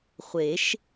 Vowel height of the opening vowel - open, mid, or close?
mid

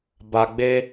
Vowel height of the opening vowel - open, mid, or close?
open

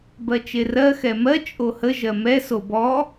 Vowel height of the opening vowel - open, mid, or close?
mid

